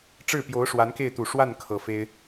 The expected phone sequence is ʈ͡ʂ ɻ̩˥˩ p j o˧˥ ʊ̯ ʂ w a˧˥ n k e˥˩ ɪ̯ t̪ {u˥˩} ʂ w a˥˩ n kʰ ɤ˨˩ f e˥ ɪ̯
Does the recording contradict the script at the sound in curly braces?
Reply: yes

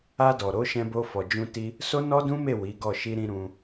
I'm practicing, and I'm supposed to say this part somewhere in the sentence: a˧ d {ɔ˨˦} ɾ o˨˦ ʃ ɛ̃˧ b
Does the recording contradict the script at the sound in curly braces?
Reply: yes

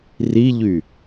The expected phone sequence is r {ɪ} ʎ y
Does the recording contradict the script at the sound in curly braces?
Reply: yes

